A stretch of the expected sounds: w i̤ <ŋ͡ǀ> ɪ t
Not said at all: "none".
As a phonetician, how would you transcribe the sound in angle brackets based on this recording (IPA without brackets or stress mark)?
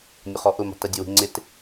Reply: ŋ͡ǀ